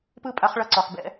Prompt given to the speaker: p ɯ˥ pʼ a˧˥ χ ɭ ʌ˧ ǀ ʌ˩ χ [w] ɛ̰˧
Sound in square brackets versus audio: incorrect: b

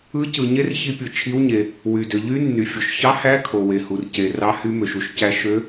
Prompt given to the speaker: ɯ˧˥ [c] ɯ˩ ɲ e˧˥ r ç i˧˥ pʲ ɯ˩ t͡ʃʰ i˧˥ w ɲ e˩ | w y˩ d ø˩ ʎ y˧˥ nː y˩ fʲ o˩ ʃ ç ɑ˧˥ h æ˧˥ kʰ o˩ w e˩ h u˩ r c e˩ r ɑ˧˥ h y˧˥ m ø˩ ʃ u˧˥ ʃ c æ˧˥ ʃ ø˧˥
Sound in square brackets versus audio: correct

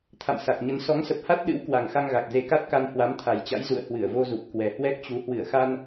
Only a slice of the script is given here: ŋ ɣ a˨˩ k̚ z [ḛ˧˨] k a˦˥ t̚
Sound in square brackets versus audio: incorrect: e˨˦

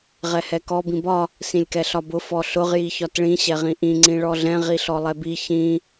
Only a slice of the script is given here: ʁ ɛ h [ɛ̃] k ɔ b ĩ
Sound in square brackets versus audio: incorrect: ɛ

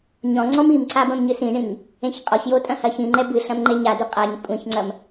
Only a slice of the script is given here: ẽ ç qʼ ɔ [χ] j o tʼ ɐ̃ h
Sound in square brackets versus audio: incorrect: ç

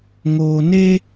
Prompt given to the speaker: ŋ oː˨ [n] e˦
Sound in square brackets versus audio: correct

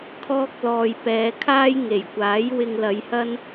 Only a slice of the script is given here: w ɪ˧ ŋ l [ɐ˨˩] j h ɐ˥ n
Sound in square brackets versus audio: incorrect: ɐ˨˧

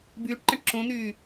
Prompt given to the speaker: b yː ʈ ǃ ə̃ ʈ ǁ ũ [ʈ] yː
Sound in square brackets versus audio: incorrect: n̪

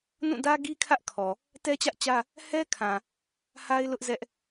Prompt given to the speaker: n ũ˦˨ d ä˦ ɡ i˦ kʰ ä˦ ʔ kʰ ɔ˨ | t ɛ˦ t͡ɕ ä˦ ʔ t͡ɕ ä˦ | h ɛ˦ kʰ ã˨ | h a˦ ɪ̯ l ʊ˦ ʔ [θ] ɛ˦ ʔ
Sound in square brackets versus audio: incorrect: z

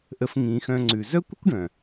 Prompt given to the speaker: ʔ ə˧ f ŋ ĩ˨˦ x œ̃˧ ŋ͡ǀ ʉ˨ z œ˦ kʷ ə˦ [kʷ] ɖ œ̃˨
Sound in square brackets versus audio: correct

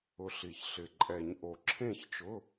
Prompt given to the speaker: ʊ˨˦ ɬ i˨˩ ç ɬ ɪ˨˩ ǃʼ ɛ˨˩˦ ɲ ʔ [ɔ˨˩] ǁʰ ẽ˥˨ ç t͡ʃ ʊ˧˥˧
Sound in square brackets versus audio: incorrect: o˨˩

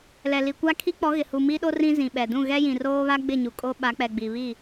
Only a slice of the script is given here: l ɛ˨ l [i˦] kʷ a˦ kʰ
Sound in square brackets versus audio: incorrect: i˨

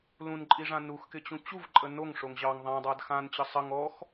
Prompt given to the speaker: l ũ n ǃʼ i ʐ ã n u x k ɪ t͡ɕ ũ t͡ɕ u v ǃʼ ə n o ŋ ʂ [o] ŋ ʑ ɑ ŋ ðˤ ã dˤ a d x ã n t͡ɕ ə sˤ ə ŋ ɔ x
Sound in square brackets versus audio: correct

